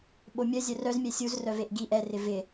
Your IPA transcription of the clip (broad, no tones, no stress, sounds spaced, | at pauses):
ɓ o mʲ œ zʲ œ r œ z mʲ ɛ sʲ u z r œ v e ʔ ɡ i ʔ ɛ r ɪ v ɪ